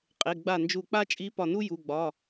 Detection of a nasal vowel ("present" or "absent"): absent